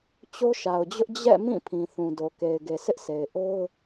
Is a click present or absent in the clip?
absent